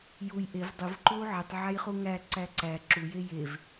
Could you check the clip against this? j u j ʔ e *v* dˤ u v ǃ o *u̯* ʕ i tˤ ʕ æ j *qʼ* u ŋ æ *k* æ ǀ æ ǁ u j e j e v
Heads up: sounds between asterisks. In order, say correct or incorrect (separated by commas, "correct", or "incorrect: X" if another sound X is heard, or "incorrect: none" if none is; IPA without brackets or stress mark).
correct, correct, incorrect: χ, incorrect: ǀ